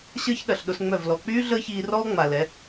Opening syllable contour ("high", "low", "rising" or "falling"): high